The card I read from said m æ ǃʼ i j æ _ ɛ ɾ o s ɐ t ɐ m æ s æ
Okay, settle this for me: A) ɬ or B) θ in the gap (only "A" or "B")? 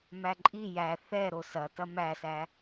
B